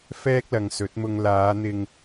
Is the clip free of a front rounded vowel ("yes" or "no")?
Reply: yes